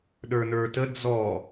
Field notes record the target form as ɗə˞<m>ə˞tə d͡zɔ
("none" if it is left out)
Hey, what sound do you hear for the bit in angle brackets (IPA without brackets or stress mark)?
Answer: n